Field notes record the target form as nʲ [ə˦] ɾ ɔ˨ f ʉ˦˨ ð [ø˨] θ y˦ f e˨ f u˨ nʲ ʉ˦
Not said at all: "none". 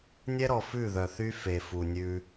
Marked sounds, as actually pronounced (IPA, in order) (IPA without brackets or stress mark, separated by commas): ɛ˦, œ˨